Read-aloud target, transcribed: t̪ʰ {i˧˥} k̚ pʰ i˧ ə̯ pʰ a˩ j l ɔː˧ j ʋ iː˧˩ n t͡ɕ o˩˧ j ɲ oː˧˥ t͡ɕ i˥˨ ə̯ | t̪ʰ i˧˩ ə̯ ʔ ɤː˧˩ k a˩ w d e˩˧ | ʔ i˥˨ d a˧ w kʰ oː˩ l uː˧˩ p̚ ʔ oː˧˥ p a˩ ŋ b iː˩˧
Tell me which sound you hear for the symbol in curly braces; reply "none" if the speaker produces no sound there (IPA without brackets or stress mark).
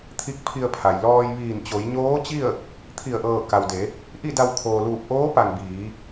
i˧˥